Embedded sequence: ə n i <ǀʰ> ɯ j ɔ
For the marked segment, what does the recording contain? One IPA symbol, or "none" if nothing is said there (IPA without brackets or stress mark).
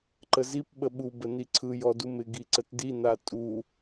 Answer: ǀʰ